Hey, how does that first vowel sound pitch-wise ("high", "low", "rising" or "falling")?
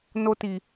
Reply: high